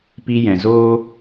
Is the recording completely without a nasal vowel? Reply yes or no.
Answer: no